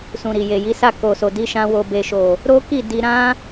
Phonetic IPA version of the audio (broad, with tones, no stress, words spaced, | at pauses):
sũ˨ ɾi˨je˨ji˨˦sa˦˨ ko˨so˨di˨˦ʃã˧ wo˨be˨ʃo˨ | ɾo˦ki˦˨ di˧ ɾã˦